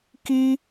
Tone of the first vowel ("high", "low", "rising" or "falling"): high